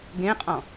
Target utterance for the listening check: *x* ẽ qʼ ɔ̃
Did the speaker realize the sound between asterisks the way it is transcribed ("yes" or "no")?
no